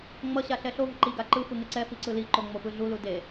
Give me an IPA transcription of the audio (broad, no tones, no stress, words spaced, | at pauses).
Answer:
ŋ͡mʌɕa ɬɛɬovɯ ǃiɡa ǃɯfɯ ŋeǀɛfi ǀɯliǃo ŋ͡mopɯɮulu de